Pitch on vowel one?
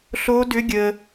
rising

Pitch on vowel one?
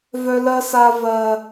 high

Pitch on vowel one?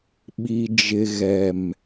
low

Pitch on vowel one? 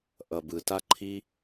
low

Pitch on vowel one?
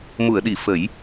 low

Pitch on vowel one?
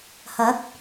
rising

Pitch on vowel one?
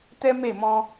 high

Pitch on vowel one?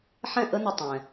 high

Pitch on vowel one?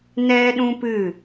high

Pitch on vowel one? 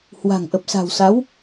low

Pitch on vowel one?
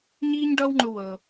high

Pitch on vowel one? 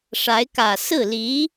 rising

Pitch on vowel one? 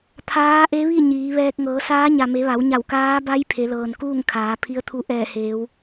rising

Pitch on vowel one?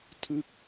falling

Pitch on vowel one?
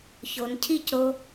low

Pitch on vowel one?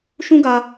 high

